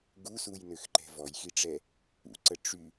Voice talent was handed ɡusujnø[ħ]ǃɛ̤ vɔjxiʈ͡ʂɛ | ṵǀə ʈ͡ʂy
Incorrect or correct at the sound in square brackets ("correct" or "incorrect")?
incorrect